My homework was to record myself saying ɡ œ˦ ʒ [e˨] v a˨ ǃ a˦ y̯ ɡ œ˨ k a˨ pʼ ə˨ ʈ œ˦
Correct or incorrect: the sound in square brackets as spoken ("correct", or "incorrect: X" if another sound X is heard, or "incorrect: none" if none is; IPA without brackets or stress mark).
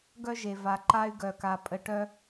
correct